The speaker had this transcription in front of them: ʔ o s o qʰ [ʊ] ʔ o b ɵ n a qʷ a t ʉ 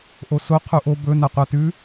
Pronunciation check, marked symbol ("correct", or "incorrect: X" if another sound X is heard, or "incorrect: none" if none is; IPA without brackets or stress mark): incorrect: u